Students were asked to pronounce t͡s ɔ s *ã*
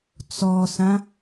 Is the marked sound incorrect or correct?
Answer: correct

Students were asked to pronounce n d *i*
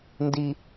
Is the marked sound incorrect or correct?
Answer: correct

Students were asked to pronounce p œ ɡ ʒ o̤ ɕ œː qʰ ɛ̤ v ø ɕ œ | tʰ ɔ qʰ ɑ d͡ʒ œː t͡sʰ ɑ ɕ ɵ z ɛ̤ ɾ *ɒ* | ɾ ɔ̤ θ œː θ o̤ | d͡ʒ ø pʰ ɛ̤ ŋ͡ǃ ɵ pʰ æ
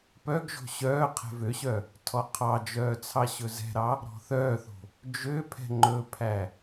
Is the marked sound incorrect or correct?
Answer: incorrect: ɑ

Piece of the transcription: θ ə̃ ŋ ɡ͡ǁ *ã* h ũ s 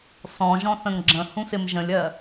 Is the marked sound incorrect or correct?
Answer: incorrect: ə̃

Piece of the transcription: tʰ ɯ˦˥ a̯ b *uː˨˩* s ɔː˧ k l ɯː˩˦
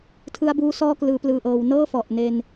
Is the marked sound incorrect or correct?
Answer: incorrect: uː˦˥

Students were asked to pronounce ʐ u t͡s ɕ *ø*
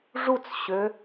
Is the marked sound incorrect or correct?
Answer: correct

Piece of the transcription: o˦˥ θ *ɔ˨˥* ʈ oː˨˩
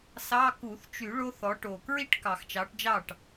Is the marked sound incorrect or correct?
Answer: correct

